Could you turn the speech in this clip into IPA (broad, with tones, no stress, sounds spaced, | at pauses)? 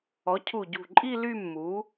ɔ˩˥ cʰ u˧˩ ɟ ṳ˧˩ ǃʼ i˥˧ l y˥˧ mː u˩˥